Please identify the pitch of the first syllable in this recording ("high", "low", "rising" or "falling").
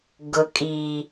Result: low